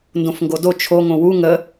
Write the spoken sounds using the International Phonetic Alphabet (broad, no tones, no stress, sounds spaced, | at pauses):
n d õ f ŋ ɡ o d o t͡ʃʰ o ŋ õ w u ŋ ə